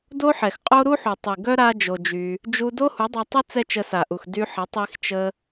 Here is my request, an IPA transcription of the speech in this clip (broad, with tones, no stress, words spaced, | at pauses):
do˦ħɛ˨xqʼo˦ ɾu˦ħu˨ tˤi˨ɡœ˦ ɾa˦ d͡ʒo˧d͡ʒy˧ | d͡ʒu˧ do˦hu˨˦dˤa˧tˤɪ˦ t͡sɛ˦t͡ʃə˧sa˨ʔu˨x dy˧ħə˨˦ tˤi˧x t͡ʃə˧